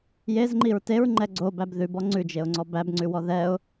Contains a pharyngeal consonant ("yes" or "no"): no